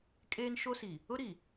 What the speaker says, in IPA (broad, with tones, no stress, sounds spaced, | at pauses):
kʼ eː˦ n ʃ o˦ s i˨ | ʊ˦ ɾ i˨